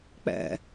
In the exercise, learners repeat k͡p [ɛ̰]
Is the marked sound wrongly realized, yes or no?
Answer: no